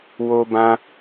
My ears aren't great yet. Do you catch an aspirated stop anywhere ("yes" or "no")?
no